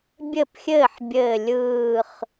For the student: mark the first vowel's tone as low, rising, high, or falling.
falling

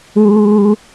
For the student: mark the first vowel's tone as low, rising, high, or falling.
high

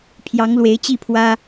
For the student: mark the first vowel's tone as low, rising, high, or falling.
rising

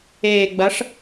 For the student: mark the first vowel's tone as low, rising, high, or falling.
low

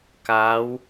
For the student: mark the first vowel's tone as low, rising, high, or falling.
rising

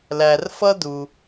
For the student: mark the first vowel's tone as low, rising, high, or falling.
low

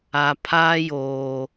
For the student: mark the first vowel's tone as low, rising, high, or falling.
low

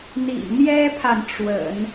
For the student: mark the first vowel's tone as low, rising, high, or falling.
low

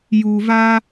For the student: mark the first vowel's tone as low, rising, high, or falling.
low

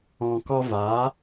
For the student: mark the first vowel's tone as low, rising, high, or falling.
low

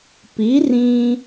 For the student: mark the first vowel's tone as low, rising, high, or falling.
rising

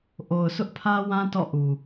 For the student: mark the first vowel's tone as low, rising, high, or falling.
low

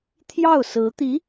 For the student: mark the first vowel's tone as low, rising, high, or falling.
falling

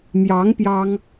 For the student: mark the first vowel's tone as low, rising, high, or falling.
rising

